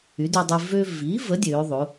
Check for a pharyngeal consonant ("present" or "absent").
absent